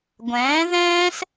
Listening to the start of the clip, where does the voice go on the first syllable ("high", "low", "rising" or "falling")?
rising